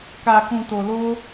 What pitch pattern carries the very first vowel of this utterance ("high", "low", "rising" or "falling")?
low